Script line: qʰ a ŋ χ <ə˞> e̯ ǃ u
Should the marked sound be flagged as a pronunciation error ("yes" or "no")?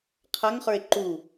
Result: no